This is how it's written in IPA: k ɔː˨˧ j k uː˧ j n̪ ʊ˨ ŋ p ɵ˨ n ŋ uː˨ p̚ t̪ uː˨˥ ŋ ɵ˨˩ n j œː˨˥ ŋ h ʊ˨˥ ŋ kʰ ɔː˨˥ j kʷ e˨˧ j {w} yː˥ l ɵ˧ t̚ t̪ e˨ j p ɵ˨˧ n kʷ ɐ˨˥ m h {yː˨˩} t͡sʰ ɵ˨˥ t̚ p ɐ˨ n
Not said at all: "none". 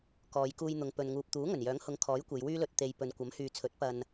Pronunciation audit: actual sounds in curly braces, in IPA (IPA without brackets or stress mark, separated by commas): w, yː˨